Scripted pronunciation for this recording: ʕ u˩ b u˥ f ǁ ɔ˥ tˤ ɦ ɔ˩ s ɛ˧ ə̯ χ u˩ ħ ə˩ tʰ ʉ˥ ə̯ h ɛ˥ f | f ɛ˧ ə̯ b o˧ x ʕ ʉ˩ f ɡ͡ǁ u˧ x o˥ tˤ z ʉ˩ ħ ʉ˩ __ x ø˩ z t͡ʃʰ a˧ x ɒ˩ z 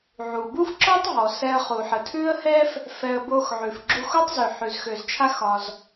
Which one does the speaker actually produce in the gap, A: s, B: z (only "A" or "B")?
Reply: B